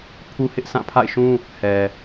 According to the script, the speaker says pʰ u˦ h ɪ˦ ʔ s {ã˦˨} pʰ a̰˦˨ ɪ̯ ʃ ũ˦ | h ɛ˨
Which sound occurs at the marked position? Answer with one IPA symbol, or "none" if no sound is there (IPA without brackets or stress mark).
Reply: ã˦˨